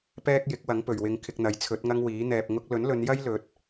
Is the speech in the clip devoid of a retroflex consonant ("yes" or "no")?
yes